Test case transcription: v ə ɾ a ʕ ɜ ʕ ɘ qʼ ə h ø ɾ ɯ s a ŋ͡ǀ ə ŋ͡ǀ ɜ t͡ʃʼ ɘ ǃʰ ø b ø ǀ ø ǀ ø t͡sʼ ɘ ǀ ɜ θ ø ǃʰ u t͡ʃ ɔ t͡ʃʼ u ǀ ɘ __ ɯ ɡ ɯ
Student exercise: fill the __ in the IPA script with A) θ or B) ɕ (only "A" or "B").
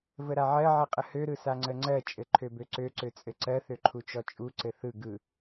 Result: A